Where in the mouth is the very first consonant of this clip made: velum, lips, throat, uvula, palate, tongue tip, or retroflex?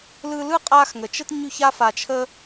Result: tongue tip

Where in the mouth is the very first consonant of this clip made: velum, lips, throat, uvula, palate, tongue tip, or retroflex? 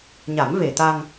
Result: palate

